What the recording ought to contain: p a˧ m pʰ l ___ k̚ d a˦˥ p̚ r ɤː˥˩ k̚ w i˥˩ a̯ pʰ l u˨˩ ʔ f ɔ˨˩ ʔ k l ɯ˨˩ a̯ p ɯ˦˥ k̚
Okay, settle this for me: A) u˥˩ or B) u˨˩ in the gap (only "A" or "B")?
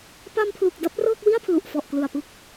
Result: B